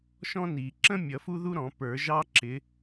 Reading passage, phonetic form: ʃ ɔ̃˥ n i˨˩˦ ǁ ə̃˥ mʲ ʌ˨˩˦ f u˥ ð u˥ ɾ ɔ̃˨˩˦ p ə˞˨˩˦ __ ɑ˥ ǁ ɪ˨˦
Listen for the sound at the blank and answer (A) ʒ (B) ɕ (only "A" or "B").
A